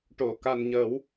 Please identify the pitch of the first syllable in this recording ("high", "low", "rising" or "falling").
low